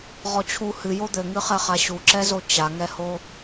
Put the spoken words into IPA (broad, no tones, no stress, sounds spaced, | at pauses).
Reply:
ʁ ɔ t͡ɕʰ u h ɨ j o d̪ ɘ ŋ ɨ χ ɛ χ a ɕ u ǁ ɛ z o t͡ɕ a ŋ ɛ h o